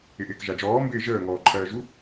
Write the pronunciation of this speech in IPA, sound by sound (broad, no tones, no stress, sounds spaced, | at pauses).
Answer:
ɪ ʔ ɪː k ʒ a d͡ʒ ɔː m b ɪː ʒ əː ŋ ɔː ǃʰ ɜː ʒ u